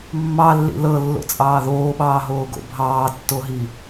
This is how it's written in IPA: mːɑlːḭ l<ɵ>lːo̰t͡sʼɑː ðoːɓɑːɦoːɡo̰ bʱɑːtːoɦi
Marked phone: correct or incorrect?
incorrect